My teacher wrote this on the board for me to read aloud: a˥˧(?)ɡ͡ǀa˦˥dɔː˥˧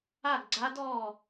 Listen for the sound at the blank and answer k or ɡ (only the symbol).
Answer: ɡ